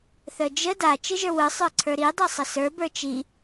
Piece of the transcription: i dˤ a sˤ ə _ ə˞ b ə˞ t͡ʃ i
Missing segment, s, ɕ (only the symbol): s